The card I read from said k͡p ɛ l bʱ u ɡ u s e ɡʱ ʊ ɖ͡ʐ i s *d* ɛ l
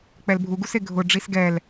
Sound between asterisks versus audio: incorrect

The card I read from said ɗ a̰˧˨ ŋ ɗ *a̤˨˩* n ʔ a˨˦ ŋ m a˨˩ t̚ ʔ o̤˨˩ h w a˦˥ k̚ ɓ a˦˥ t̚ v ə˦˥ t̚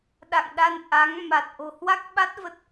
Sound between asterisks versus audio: incorrect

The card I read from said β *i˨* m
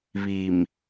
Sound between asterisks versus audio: correct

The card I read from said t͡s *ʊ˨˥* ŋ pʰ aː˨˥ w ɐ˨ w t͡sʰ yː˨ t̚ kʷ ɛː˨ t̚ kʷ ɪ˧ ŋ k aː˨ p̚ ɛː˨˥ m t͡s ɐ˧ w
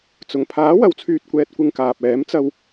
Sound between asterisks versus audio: incorrect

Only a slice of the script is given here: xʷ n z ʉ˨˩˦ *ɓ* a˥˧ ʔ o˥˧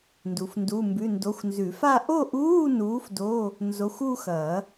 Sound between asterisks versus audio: incorrect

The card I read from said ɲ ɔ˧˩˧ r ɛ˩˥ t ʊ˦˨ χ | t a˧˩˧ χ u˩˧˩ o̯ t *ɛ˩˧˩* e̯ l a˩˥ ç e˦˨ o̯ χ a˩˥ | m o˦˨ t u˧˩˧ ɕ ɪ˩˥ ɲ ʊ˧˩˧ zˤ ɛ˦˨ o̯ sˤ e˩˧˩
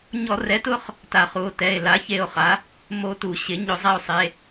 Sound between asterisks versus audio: correct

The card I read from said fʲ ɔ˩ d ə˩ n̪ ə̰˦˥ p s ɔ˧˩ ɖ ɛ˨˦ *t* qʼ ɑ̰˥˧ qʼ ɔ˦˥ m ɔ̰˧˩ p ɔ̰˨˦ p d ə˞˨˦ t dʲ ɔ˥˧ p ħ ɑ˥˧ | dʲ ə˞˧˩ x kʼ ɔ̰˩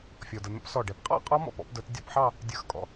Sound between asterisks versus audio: incorrect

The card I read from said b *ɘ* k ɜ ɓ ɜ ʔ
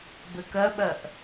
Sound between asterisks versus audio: correct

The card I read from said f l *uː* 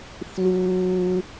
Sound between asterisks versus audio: correct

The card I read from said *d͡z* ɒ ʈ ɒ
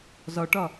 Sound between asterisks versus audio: incorrect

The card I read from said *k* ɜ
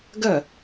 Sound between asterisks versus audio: incorrect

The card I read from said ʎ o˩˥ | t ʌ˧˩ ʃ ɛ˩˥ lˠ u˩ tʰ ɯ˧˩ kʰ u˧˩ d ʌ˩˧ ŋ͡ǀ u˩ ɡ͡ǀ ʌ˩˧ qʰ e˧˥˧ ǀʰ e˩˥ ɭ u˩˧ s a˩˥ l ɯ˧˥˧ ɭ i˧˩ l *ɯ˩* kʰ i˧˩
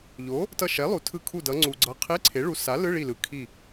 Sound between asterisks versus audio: correct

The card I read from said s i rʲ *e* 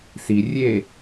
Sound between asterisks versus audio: correct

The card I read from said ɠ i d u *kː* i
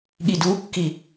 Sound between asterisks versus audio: correct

